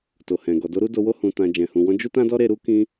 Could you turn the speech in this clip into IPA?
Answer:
t o˨ h ɛ̃˨ ɡ ɔ˨ d o˧ ɾ u˦ d o˧ w o˦ h ũ˧ t ã˧ d͡ʒ ɛ̃˨ h ũ˨ w ɔ̃˧ d͡ʒ u˦ t ã˦ d ɔ˦ ɾ e˧ ɾ u˦ k ĩ˦

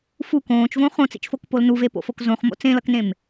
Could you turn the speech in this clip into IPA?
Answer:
f u k õː t͡ʃ v õ χ õ t͡s ḭ t͡ʃ f o k p o l n u v e p o̰ f o k z õ χ m o̰ t͡s ẽ l ʌ k n ẽ m

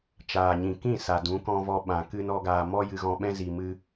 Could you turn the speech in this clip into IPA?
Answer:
t͡ʃ aː˨ ɲ ĩ˨ k ĩ˦˨ s a˨ d ũ˨˦ k ɔ̃˧ v ɔ˧ ɓ ã˨ k ɨ˧ n ɔ˧ ɡ aː˧ m ɔ˦ j ɨ˧ ɣ ɔ̃˧ ɓ ɛ̃˦ z i˧ m ɨ˦

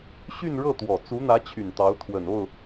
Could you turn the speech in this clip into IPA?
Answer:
ɕ y˥˧ n ɻ ɤ˥˩ t̪ w ɔ˨˩ t͡s u˧˥ n̪ ä˧˥ t͡ɕʰ y˨˩ n t̪ ɑ˧˥ ʊ̯ t̪ʰ w ə˨˩ n o˥˩ ʊ̯

